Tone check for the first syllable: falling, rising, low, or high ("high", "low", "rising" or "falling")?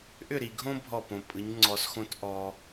falling